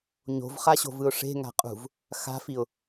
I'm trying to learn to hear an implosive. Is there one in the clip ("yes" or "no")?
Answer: no